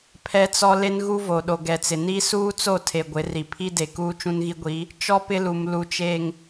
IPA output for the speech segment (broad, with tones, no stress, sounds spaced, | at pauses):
pʰ ɛ˦ t͡s ɔ˦ l e˦ n ɣ u˦ v o˨ ɗ o˨ ɡ ɛ˨ t͡s ɪ˨ n i˦ s uː˦ t͡s o˦˨ tʰ e˨ ɡʷ ɪ˨˦ r i˨ pʰ i˦ d e˨ k uː˦ t͡ʃ ũ˦ n ɣ i˦ ɡʷ i˨˦ | t͡ʃ ɔ˦ p ɪ˦ l u˨ m l u˨ t͡ʃ e˨ ŋ